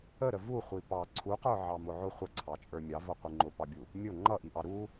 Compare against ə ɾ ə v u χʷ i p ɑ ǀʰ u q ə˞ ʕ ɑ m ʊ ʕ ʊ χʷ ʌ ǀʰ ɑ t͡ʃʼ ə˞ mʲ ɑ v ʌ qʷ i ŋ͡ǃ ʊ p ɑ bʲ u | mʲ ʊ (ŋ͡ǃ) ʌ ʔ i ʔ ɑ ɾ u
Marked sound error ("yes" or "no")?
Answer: no